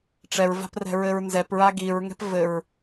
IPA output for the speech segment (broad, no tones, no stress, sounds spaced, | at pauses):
ʈ͡ʂ ɛ ɹ v a̤ p r ɛ̤ ɹ ɘ ɹ n z ɛ p ɹ a ɡ i ɹ ŋ ɛ̤ p v ɘ ɹ